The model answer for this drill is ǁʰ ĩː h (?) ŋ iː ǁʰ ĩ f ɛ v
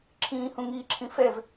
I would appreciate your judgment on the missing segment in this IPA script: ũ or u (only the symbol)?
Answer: ũ